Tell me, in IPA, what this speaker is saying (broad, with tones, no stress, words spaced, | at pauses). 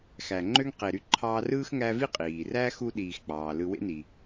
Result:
xæ˨ŋ͡ǃø˥ŋqe˨ɾy˦ ǃʰɑ˦ rɯː˥xŋæ˦vi˥ qʼiː˩ræ˥ xu˥ɗiː˨xk͡pɑː˩ lɯ˨wḛ˦ni˩